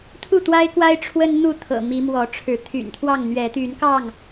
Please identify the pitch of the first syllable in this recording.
falling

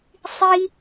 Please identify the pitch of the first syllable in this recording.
high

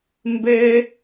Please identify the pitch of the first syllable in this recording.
high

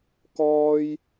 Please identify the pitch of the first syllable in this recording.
high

